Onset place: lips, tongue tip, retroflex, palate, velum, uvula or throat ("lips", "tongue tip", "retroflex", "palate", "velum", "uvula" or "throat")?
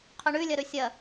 uvula